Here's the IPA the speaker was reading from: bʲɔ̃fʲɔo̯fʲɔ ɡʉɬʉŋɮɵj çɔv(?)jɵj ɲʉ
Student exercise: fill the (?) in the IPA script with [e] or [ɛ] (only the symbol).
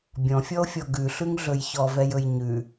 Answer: ɛ